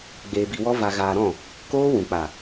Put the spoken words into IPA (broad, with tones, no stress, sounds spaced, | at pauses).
ɡ͡b eː˧ b i˧ w ɔ˦ v a˧ ɣ aː˧ ɾ ɔ̃˦˨ | k oː˦ w ũ˨ k͡p a˨